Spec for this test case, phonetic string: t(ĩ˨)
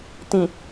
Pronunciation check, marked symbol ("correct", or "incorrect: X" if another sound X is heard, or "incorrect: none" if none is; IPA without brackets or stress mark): correct